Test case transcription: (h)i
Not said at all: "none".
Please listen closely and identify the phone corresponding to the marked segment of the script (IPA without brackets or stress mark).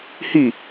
h